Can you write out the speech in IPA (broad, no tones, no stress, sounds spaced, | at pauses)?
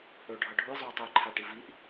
ɽ ɵ ɖʱ ʌ ɖʱ u j zˤ u j tˤ ʌ j ǃʰ a ʈ i v i ʔ